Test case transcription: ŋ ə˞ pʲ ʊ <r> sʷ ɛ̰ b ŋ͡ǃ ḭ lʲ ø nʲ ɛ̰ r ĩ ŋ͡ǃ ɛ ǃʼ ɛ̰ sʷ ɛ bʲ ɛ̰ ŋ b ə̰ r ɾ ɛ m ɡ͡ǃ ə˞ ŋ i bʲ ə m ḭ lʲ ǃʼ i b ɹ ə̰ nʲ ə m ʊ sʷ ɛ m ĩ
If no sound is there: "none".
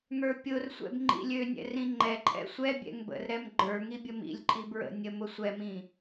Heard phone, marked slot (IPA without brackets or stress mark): r